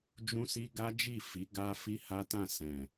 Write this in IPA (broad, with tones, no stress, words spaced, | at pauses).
d͡ʒũ˦si˦ ɡa˦d͡ʒi˦˨fi˨˦ ɡa˦ fi˦ha˦tã˦˨sɛ̃˨